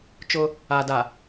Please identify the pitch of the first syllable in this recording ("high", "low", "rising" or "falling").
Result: high